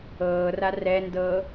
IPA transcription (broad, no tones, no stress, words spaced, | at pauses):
ɤːra rɛndɤː